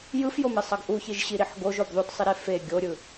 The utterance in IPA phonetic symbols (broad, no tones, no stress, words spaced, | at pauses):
jɯfjomesˤʌɡ ʔuçiʒɕiɾiħ ɡoʒob ðˤutsˤiɾe fe ɡʲoɾʲɯ